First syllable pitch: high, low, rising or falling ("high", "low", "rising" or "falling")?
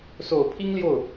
low